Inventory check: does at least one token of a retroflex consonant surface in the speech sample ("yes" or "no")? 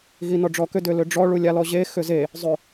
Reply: yes